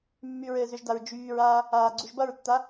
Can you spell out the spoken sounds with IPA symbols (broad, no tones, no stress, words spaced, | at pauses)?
mːyɹɘːzʏʒdaɹ d͡ʒyːɹaː | aːɡ͡ǀuʒbʌɹtːa